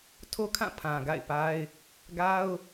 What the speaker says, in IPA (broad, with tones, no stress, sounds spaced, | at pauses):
tʰ o˦ kʰ ã˦˨ pʰ ã˨ ɡ a̰˦˨ ɪ̯ p a˦ ɪ̯ | ɡ a˦ ʊ̯